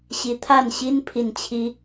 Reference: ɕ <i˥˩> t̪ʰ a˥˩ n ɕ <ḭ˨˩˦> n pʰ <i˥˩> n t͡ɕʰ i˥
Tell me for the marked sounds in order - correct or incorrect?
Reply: incorrect: i˧˥, incorrect: i˥, correct

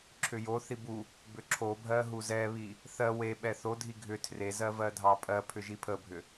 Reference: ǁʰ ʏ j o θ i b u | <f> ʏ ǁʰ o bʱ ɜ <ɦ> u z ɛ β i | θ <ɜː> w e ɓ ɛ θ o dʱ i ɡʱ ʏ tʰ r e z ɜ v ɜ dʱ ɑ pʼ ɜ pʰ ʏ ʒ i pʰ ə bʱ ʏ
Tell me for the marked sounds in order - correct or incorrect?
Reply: incorrect: b, correct, incorrect: ɜ

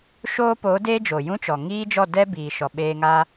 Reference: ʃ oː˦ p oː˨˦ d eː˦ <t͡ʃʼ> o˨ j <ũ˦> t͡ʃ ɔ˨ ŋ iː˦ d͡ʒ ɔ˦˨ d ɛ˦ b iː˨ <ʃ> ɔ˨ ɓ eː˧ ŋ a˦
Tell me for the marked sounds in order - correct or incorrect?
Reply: incorrect: d͡ʒ, correct, correct

